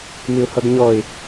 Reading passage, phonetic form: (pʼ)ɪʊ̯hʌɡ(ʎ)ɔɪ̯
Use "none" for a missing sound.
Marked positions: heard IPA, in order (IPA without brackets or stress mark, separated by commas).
m, ɲ